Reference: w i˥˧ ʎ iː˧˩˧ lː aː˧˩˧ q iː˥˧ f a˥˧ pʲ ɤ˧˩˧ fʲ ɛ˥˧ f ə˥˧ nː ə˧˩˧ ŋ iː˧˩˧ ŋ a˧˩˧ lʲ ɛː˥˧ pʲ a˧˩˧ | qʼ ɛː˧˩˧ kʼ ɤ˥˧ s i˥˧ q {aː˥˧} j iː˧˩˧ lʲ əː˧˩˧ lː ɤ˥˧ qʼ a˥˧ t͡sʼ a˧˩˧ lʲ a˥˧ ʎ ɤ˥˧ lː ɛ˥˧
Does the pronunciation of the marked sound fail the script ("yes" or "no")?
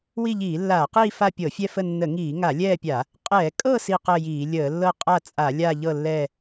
yes